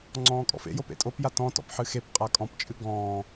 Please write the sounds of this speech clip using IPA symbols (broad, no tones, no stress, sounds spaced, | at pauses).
ŋ͡ǀ ɔ̃ː kʼ ɔ̰ f ḛ j o p ḛ tʼ o p j a t ɔ̃ t ɔ̰ p ħ ɨ x e p qʼ a kʼ ɔ̃ p t͡ʃʼ ɨ ɡ ɔ̃ː